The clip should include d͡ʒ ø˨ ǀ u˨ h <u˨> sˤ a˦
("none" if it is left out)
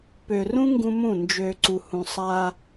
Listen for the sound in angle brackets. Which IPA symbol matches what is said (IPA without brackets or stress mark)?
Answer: ũ˨